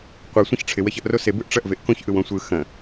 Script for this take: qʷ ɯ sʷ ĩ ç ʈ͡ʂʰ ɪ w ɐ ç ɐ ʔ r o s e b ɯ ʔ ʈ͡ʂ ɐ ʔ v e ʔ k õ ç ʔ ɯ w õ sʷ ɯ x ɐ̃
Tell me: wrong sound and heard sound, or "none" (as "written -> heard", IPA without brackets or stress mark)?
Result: none